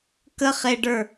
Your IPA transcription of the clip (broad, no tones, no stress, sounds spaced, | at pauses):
k ə χ e ɖ ə˞